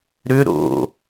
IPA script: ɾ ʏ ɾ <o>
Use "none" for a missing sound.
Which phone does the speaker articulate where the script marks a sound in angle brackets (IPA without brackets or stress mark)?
o̰